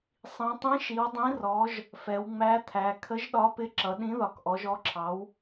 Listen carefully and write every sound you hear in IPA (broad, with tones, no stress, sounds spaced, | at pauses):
sˤ ĩ˩˧ tˤ ĩ˨˥ ʃ i˩˧ w dˤ ĩ˨˥ r ɔ˨˥ ʒ | f ɛ˩˧ w ŋ͡m æ˨˥ t̪ʰ æ˩˧ kʰ ə˨˥ ʒ ɗ ɒ˨˥ p ɪ˨˥ ǁ ʌ˩˧ ɗ ĩ˨˥ ð ɒ˩˧ k ʔ ɔ˩˧ ʒ ɔ˨˥ ǁʰ ɑ˨˥ w